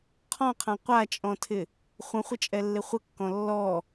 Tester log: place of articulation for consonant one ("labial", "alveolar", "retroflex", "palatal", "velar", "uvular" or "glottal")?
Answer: uvular